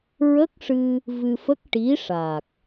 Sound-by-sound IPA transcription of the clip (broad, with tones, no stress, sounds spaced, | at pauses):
ɹ ə˦˥ k̚ ʂ ɨ˧ | v ɨ˧ f ə˦˥ k̚ ʈ i˧˥ ʂ a˨˩ k̚